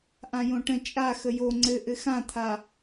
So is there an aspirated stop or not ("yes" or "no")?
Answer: yes